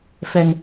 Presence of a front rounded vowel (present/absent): absent